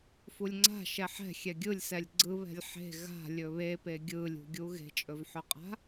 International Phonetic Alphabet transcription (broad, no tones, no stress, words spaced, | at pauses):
fulʲŋ͡ǀa̤ ʃɛħɛ̤ xʲɛɡʲɯlʲsɛlʲ ɡ͡ǀɯ βɛ̤lʲħe̤ ɣa̤ lʲɵβepe ɡʲɯlʲṳɡʲu ɣe̤t͡ʃʼɵvħɵqʼa̤